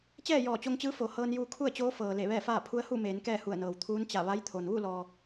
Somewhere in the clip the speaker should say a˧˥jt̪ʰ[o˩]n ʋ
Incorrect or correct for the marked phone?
correct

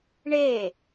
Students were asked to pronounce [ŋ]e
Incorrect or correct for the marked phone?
incorrect: ɳ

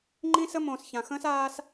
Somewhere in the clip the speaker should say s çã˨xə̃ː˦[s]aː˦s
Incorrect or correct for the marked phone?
correct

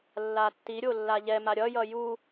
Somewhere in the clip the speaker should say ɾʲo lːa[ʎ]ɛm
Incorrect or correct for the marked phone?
correct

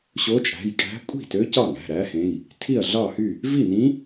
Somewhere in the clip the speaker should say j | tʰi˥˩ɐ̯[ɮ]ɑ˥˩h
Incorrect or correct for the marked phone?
correct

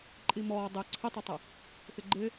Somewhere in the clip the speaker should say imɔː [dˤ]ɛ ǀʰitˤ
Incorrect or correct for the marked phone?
correct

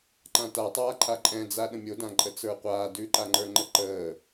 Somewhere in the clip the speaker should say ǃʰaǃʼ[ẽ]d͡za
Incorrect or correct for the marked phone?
incorrect: ɛ̃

